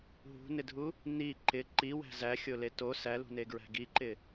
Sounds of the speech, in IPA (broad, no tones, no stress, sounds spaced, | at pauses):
ɦ ṳ n ɪ dʱ u | n i ǃ ɪ ǃ i w æ̤ z æ xʲ o l e t o s æ l ṳ n e ɡ ɹ æ̤ ɡ i ǃ ɪ